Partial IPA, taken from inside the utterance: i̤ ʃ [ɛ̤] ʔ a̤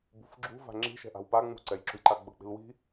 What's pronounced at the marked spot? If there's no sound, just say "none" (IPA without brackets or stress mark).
ɛ̤